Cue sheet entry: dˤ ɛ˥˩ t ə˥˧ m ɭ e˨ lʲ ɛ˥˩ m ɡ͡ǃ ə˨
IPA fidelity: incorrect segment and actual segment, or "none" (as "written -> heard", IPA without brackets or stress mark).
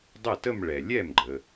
e˨ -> ɛ˨